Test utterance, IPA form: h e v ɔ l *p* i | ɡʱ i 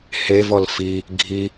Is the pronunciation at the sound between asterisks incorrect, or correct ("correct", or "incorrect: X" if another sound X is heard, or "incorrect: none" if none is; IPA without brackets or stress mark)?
incorrect: f